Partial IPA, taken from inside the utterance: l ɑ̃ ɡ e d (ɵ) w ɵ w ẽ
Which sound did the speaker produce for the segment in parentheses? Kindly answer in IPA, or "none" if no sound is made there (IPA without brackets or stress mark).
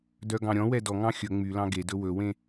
ɵ